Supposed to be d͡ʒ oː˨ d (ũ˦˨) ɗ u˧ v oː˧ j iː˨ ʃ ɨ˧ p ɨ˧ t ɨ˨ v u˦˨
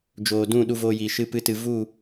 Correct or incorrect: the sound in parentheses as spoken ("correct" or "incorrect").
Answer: correct